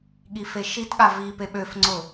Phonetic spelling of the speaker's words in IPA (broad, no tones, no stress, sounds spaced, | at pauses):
ɠ i f e ʃ i t ɠ a v i p e ɓ ø f ŋ͡ǀ ʊ